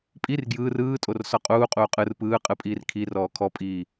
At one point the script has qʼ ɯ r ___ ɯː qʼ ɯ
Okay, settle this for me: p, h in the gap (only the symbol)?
p